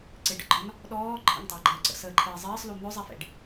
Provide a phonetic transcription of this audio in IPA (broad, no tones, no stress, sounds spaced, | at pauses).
ǀ ɪ ɖ ə̰ ɡ͡ǃ ɒ n | ɗ ɔː ǃʰ ə̰ ŋ tˤ əː ɡ͡ǃ əː ǀ ə̰ s əː ǃʰ ɪː zˤ ɪː sˤ l u n̪ ɵ zˤ i f ḛ ɖ